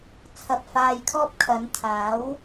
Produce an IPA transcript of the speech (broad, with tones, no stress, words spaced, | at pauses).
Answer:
t͡sʰɐ˧p̚faː˧jkʰɔː˥p̚ kʰɐ˨˧nt̪ʰaː˨˥w